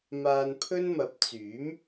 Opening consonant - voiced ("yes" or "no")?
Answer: yes